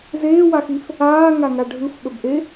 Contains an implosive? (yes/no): yes